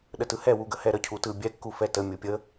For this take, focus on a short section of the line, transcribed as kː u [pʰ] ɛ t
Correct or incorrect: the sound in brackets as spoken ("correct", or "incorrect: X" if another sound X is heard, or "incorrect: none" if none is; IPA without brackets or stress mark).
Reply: incorrect: f